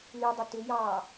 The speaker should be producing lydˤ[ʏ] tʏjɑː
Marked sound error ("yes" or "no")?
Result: no